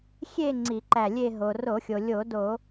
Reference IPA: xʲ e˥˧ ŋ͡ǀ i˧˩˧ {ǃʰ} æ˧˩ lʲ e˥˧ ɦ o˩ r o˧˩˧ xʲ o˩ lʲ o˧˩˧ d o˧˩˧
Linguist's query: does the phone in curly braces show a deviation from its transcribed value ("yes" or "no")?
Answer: yes